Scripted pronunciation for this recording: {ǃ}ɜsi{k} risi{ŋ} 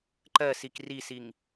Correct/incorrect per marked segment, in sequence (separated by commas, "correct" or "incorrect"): correct, correct, correct